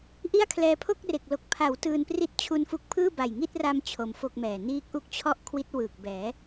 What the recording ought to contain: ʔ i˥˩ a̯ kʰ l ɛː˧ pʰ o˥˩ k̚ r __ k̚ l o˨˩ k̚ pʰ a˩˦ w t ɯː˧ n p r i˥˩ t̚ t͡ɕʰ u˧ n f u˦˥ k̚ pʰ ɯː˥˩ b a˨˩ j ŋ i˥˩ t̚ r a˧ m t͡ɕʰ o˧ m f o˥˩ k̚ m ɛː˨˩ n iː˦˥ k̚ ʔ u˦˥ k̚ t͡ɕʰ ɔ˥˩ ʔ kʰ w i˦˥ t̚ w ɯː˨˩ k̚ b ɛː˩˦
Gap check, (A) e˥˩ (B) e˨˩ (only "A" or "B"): B